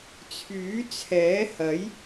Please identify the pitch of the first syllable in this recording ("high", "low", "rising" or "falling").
rising